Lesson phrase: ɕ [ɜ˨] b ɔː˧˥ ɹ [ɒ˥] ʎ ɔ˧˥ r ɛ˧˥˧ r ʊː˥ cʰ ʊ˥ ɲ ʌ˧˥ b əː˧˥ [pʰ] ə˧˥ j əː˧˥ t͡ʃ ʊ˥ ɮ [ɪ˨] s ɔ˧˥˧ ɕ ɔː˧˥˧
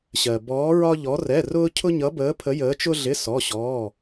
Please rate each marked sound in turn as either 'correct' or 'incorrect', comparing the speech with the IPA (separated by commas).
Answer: correct, correct, correct, incorrect